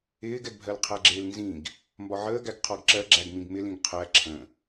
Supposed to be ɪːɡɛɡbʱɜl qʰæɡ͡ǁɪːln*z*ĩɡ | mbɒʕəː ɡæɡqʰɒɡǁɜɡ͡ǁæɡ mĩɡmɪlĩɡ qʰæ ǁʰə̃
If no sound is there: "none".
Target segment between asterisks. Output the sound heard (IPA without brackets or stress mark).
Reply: z